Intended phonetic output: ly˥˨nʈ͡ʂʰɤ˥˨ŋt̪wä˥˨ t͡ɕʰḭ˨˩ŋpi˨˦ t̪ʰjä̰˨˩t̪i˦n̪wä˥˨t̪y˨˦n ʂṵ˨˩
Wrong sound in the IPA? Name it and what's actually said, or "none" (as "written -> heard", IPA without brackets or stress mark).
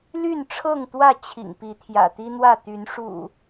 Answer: none